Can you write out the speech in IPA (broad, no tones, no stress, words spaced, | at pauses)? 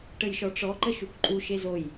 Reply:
ʈəjʃɔʈ͡ʂɔǃə ʃukǃʼuʃe zoj